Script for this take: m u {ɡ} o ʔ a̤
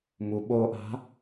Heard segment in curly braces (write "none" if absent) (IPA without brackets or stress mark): ɓ